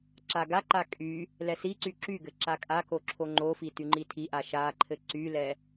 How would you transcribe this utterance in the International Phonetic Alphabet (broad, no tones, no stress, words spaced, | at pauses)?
ǁaɡaǃa kʼy | lɛsiǀy ǁyɡɘ ǁakʼako ǁʰoŋ͡ǃofi tyŋ͡ǃitʰiʔa ʃaǃʰɘ ǀylɛ